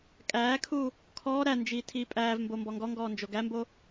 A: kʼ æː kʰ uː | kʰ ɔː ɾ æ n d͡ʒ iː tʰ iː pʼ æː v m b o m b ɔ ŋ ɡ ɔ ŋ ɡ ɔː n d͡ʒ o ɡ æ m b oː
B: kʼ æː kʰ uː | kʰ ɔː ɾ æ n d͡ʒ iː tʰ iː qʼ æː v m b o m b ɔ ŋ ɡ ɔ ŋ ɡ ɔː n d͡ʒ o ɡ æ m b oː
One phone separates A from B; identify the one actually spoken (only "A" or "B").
A